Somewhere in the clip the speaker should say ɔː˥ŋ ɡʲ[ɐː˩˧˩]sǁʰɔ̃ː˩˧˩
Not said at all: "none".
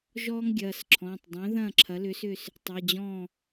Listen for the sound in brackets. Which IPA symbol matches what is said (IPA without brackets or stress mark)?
ɐː˩˧˩